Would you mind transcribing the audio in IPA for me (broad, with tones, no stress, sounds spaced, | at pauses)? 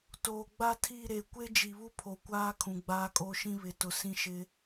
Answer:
t oː˨ ɡ͡b a˦ tʰ i˦˨ ɾ e˨ kʷ e˦ d͡ʒ i˨ β u˦ pʰ o˨ kʷ aː˦ kʰ ũ˨ ɡ͡b aː˦ kʼ o˦ ʃ ĩ˦ β ɪ˨ t ʊ˨ s ĩ˦ ʃ ɪ˦